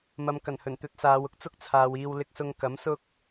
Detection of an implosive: absent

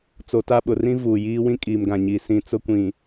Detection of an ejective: present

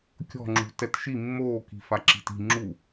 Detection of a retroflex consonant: absent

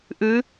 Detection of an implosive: absent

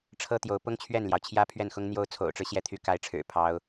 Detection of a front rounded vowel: present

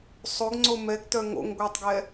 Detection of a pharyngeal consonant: absent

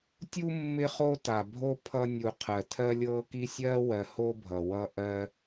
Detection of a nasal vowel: absent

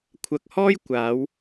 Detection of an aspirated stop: present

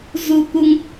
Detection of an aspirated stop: absent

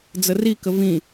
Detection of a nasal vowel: present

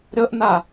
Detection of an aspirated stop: absent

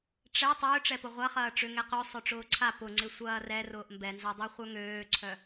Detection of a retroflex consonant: present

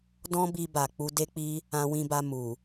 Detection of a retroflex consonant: absent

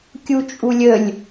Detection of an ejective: present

